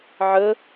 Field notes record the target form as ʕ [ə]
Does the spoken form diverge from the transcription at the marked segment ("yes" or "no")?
no